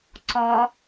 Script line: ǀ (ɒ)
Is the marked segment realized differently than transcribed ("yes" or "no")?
no